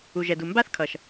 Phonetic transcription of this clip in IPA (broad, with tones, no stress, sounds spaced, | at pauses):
u˨ ʒ ɛ˨ d u˨ m b a˦ θ kʰ ʌ˨ ʃ